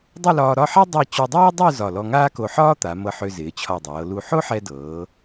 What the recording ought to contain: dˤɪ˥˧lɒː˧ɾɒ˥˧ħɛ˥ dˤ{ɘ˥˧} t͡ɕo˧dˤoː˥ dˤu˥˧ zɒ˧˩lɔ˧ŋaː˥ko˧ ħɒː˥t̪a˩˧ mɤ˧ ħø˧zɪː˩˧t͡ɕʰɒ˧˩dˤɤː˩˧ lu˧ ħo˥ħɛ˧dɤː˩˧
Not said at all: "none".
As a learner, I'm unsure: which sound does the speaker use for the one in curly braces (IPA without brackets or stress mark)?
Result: ɛ˥˧